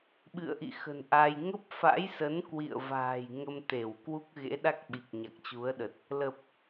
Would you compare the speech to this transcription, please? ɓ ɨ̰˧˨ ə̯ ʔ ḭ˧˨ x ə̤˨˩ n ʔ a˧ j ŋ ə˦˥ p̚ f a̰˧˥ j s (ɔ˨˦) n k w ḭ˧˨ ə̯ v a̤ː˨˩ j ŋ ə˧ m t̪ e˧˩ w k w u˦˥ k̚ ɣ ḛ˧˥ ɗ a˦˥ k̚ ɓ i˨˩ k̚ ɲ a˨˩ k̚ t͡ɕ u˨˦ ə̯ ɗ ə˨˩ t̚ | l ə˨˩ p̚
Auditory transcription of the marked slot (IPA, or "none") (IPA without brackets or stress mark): ə˨˦